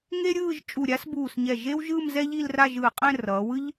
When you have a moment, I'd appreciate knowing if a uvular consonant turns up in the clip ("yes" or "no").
yes